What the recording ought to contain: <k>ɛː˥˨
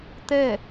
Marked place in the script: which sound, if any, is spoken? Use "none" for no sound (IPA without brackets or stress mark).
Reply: t̪